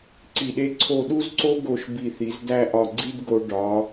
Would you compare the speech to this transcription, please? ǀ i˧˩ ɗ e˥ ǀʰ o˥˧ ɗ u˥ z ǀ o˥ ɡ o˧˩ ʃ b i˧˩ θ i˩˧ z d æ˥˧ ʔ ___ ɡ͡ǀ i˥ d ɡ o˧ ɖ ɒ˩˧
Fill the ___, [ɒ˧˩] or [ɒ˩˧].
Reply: ɒ˧˩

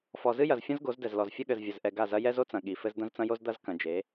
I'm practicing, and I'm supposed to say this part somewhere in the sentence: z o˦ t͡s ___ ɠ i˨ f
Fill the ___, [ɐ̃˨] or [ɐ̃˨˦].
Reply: ɐ̃˨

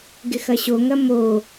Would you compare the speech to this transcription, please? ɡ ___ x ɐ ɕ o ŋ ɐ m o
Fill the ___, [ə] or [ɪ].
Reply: ɪ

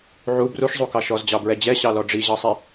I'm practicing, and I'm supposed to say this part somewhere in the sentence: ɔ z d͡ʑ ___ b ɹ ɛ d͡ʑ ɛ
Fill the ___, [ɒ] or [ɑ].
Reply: ɑ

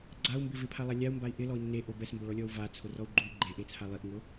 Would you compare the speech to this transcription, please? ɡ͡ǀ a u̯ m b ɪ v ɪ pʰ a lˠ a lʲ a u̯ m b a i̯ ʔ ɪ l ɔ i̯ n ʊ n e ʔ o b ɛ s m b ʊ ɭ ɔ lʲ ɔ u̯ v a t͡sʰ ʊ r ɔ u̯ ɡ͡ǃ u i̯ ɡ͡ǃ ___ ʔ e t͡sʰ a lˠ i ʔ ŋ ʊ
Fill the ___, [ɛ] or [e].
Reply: e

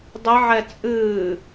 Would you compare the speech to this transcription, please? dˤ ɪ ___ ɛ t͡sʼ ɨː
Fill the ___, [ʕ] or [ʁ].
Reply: ʕ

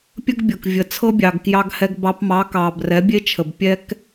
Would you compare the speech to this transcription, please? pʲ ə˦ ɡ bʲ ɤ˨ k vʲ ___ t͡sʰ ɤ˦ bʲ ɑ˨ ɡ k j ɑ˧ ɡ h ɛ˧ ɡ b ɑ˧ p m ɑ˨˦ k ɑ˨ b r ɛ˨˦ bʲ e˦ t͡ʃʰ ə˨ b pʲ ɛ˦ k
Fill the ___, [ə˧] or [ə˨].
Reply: ə˨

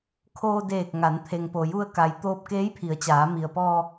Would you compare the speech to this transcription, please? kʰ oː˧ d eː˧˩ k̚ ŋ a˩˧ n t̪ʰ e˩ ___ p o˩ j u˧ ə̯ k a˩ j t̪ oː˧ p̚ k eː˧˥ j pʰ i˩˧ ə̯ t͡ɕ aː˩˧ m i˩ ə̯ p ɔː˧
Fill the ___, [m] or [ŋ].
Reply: ŋ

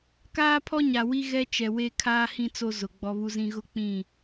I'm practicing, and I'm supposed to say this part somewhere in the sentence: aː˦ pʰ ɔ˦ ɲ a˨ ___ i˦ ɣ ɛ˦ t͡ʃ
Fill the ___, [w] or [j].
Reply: w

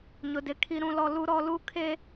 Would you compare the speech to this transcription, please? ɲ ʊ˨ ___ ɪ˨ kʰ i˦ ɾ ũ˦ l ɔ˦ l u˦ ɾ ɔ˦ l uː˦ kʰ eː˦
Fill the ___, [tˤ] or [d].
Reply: d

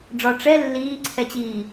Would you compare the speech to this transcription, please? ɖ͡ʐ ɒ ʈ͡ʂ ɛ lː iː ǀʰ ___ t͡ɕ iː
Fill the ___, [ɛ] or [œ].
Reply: ɛ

